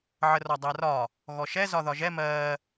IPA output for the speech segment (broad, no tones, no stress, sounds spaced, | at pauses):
ʕ ə r ɒ dˤ æ r ɒ | ɣ ɔ ʃ ɛ z ɒ ð ɒ ʒ ɛ m ɜ